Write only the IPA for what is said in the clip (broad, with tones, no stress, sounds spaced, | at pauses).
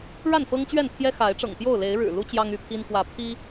ɻ a˥˨ n f ɤ˦ ŋ t͡ɕ ɥ ɛ˥˨ n t̪ʰ j ɛ˦ x a˨˦ ɪ̯ ʈ͡ʂ ɤ̰˨˩ ŋ p j o˥˨ ʊ̯ l e˨˦ ɪ̯ ɻ ɻ̩˨˩ l u˦ t͡ɕ j ɑ˦ ŋ y˥˨ pʰ i˦ n k w ä˨˦ pʰ i˦